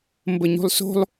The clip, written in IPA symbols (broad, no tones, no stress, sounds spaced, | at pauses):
m b ə ɲ ṳ lˠ s o̤ lˠ